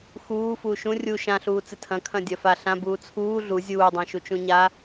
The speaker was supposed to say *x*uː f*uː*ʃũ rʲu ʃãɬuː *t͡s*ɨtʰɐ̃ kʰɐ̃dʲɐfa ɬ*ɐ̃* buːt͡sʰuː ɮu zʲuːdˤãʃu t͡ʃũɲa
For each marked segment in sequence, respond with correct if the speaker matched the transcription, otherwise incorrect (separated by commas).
correct, correct, correct, incorrect